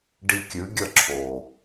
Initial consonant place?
retroflex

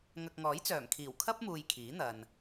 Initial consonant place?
velar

